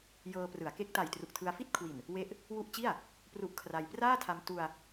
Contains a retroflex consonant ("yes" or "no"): no